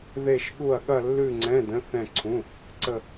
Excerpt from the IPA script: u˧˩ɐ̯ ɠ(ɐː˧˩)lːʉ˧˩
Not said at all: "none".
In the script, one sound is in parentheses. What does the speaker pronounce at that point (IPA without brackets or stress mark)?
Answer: ɐ˧˩